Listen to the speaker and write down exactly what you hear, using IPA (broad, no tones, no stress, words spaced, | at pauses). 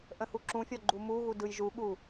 ʔə̃huǁũfʲɔ ɡ͡ǃumuɣu dɯjʒuɠu